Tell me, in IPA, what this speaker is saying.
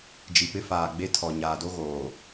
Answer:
d͡ʒ i˨ p ɪ˦ f aː˨ ɡ͡b e˦ tʰ ɔ˨ ɲ aː˨ d o˦ ɣ oː˨

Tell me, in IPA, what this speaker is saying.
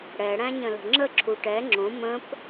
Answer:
ɽ ɛ ɽ æ̃ ɲ ə̃ l ə̤ ŋ͡ǁ ə ǁʰ u ʈ ɛ ŋ͡ǁ õ m ə̃ p

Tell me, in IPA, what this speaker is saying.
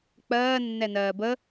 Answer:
k͡p ɜː nː ɛ n ɜː b ə

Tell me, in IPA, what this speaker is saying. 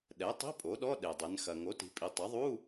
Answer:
ɗ ɛ˩˥ tˤ i̤˧˥˧ pʼ o˩˥ ɗ ɔ˧˥˧ ɗ e˩ dˤ ɘ˩˧ n x ɐ˩ ŋ o˩˥ t i̤˩˧ pʼ i˩˧ tˤ ɐ˩˥ ðˤ u˧˥˧

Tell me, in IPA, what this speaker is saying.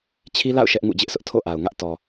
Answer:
t͡ɕʰ i˦ l a̰˦˨ ʊ̯ ʃ ɛ˦ ʔ ŋ ṵ˦˨ d͡ʑ ɪ˦ ʔ s ʊ˦ ʔ tʰ o̰˦˨ ʔ a˨ ʊ̯ ŋ ä˦ ʔ t ɔ˨

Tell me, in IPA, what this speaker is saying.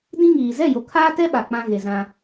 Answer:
d ĩ˦ ŋ iː˨ z ɛ˦˨ j o˨ kʰ aː˦ t ɛ˦ ɓ a˨ k͡p ã˦ ɣ e˨ z ã˦

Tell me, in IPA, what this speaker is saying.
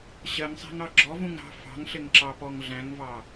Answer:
ɕ ɜ ŋ sˤ æ̤ ŋ ɑ ɡ͡ǁ ɔ v ũ ŋ ɾ ɑ̤ f ɑ̤ ŋ ɬ ɪ ŋ ǁ ɑ p ɔ ŋ ɮ æ̃ ŋ v ɑ

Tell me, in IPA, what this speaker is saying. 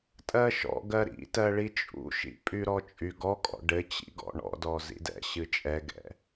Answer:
tʼ ɜ ʃ ɔ̰ ɡ ɜ ɾ ḭ t ɜ ɭ i t͡ʃʼ ṵ ʃ ḭ pʼ y ɾ ɔ t͡ʃʼ y ɡ ɔ kʼ ɔ̰ ɖ ɘ t͡ɕ ḭ ɡ ɔ̰ ɳ ɔ̰ d ɔ z ḭ d ɛ̰ ɕ ɨ t͡ʃʼ ɛ ɡ ɛ̰

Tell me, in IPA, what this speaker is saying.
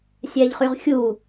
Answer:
sʲ æ ʎ χ y ʁ xʲ u

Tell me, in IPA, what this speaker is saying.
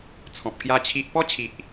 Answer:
t͡sʰ ɔ̃˨ p̚ k j a˦ t͡ɕʰ i˦ ʔ p ɔ˦ t͡ɕʰ i˨ ʔ

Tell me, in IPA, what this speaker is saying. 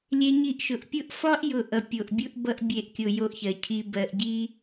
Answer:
lʲ e˧ ɲ i˧ ʔ ʃ ʊ˨ ʔ pʲ ʊ˦ ʔ f ɒ˦ ʔ j ʊ˧ ʔ ʌ˨ pʲ o˨ ʔ bʲ ʊ˦ ʔ b ʌ˧ ʔ bʲ e˨ ʔ kʲ ʊ˨ j o˧ ʔ ç ɜ˨ cʰ i˧ b ɜ˧ ʔ ɟ i˦

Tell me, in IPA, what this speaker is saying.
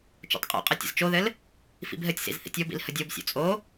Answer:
t͡ʃ o̰ tˤ qʼ o̰ qʼ ɘ tʲ ə̰ z t͡ʃ o ð ɘ l | f ḭ b ɦ ɘ tʲ s ḭ z θ ḭ tʲ o b ḭ l h ə dʲ o b sʲ o̰ t͡sʼ o

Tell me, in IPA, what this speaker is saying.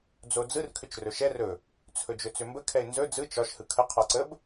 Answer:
d͡z o d͡z ɯ r kʰ ʏ t͡ʃ r ɵ ʃ ɛ r ɵ | t͡sʰ ɵ d͡ʒ ɵ t͡s ʏ m b ə kʰ ɛ ɪ̯ n z ɵ d͡z ɯ t͡ʃ ɒ ʃ h ɯ kʰ ə qʰ ɒ ǀ ə b

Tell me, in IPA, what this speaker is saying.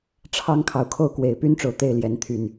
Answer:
ʈ͡ʂʰ ɑ˦ ŋ kʰ ɑ˨ ʊ̯ kʰ o˥˨ ʊ̯ k w e˨˩ ɪ̯ p y˦ n ʈ͡ʂ o˨ ʊ̯ t̪ e˥˨ ɪ̯ l j ɛ˨˦ n t̪ʰ y˨˩ n

